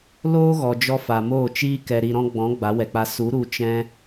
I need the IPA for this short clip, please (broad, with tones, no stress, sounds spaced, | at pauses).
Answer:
l oː˦ ɣ ɔ˨ d͡ʒ ɔ˧ f a˨ m oː˦˨ t͡ʃ iː˦ k ɛ˨ ɾ i˨ ɾ ɔ̃˧ ɡ͡b ɔ̃˨˦ ɡ͡b a˨˦ w ɛ˨ k͡p a˧ s u˨˦ ɾ u˧ t͡ʃ ɛ̃˧